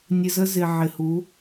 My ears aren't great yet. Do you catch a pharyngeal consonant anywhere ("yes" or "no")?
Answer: yes